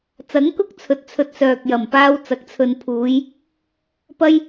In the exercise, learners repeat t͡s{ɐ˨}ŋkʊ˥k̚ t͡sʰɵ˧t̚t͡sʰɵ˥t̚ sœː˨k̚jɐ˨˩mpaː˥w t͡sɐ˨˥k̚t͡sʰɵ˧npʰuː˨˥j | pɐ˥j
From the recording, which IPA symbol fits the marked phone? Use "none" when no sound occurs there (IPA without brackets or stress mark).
ɐ˨˥